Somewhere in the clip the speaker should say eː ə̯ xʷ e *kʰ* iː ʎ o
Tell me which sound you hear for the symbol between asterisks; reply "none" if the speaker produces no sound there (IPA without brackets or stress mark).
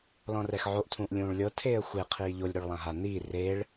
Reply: qʰ